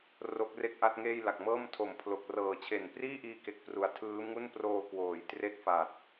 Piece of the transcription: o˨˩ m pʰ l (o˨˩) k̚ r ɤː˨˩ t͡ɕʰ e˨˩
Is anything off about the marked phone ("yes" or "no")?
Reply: no